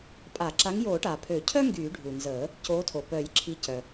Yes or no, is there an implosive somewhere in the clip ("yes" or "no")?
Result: no